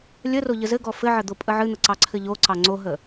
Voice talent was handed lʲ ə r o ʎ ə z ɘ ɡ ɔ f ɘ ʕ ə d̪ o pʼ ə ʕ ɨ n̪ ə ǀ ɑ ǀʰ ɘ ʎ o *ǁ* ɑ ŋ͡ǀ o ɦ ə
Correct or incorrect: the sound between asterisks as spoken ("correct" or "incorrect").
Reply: incorrect